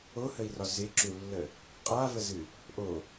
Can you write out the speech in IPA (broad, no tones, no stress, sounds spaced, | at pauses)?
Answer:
o h ə i̯ r ɒ z ɪ ǁ u lː ə | qʼ a v ə z ɨ | ʔ o